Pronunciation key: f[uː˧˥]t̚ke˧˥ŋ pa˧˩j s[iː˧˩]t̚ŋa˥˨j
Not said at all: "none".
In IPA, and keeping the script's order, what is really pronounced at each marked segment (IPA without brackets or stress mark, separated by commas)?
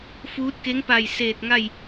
uː˧˥, eː˧˩